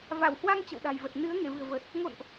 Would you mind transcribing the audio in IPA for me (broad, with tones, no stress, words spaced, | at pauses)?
va˧˩w hwa˧ŋ t͡ɕə̰˧˨wɗa̤˨˩jvə˨˩t̚ nɨ˨˦ə̯ ŋe˧˩vɨ̤˨˩ə̯vəː˨˩t̚ | ŋo̰˧˨nʔ